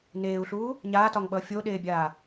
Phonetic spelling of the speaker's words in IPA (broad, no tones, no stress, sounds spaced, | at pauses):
n eː u̯ ɬ uː | ɲ aː t ɒ ŋ ɓ ʌː fʲ o ɗ eː bʲ aː